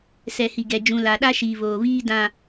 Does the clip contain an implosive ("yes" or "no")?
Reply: yes